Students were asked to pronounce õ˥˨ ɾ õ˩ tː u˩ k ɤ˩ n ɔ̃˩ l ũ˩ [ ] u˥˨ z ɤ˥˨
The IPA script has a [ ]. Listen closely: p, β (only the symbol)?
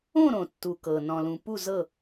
p